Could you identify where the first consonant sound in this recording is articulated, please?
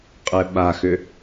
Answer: uvular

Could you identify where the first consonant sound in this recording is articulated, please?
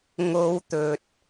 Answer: velar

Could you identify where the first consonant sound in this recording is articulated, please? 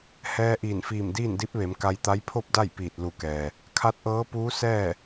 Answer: glottal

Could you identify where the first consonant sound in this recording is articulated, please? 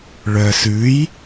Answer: retroflex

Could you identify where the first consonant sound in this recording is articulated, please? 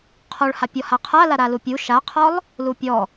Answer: uvular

